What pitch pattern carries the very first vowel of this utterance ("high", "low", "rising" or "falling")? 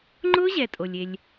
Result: high